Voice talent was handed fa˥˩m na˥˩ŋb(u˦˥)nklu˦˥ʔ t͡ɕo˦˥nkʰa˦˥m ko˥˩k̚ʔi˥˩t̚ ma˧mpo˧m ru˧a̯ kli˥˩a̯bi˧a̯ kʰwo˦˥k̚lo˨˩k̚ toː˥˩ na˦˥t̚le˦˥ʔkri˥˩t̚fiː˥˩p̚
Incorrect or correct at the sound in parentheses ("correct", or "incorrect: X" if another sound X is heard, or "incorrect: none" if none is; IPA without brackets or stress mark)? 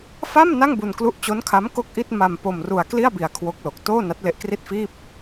incorrect: u˧